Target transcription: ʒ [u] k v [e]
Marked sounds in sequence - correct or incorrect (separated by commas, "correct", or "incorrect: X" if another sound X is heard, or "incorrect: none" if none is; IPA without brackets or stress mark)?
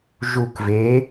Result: correct, correct